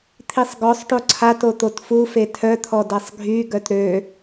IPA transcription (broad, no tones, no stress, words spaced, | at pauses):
t̪ʰisˤɡɔsˤʈo ǀʰato t̪otfufe tʰœt̪ʰɔ dɛsˤɡʱyɡœt ɾø